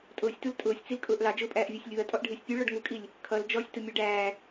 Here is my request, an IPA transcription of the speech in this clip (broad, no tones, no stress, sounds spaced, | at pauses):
tʼ ʊː sʲ t u l tʼ ʊː sʲ t͡s i l kʼ ʊː ʔ l ɑ d͡ʒ ʊː pʼ æː ʔ vʲ ɛ sʲ lʲ ʊː ɐ̯ tʼ ɔ ʔ ɖʱ ɪː sʲ pʲ u ɭ ɔ ɖ ŋ u kʼ i lʲ | kʰ ʌ l d͡ʒ ɔ sʲ t ʊ mʲ ɔ ɖ æː